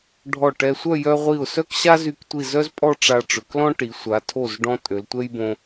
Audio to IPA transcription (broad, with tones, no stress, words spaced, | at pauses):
ɖʱɔ˧˩ʈɛ˧sʷœ˥˧ jœ˧ʁʷi˧˩ʊ̯ sœ˥˧kɕa˥zy˧˩ktʷi˧˩ zœ˥zpʼɔ˥˧ʈ͡ʂa˧ ʈ͡ʂø˩˧klɔ̃˥ʈi˩˧ sʷa˩˧tʰo˧˩z ɖɔ̃˧ tʼø˩˧ltʷɛ˥jbõ˧